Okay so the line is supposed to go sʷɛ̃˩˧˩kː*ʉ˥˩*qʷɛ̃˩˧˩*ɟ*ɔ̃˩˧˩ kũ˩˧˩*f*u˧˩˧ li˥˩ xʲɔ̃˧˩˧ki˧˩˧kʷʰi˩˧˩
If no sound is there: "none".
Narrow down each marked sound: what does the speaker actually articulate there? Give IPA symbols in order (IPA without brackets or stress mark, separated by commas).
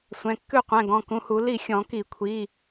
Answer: ʉ˥˩, ɡ, h